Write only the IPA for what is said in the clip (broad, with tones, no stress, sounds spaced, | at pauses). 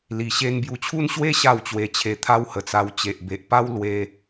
l i˨˩ ɕ e˧ n b j u˧ t͡ɕʰ u˦ n ɕ w e˦ ɕ a˥˧ w t͡ɕ w e˧ t͡ɕʰ e˧ t̪ʰ a˦ w h ə˨˩ t͡s a˧ w t͡ɕ e˨ ʔ b e˨ ʔ p a˦ w l w e˦